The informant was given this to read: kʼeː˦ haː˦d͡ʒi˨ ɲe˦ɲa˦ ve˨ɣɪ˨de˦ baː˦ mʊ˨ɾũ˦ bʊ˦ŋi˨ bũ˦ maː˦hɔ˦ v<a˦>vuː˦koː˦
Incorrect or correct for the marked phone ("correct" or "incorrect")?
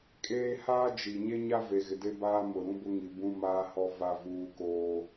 correct